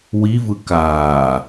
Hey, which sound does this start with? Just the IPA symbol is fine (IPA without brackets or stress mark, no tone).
w